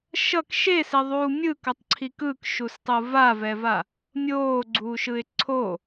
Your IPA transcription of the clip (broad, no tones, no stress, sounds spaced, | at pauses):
ʃ ʌ k ʃ e s e ðˤ uː mʲ ɯ k ʌ tˤ ǀʰ i k ɯ k ʃ u s tˤ ɯ v a v ɛ v a | mʲ oː ɡ͡ǀ uː ʃ ɯ ɪ̯ ǀʰ o